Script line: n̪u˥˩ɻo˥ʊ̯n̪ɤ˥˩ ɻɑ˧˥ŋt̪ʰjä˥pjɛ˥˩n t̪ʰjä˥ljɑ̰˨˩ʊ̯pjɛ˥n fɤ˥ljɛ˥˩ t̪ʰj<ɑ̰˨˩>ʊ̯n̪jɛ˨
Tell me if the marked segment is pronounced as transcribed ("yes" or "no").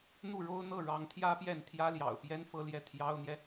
no